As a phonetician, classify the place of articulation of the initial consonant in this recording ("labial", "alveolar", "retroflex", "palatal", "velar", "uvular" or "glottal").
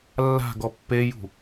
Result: alveolar